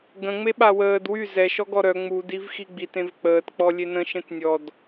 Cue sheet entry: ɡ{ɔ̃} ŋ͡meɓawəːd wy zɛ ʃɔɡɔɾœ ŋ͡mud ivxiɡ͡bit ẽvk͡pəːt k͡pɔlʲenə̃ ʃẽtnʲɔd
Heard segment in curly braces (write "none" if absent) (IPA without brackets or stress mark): ə̃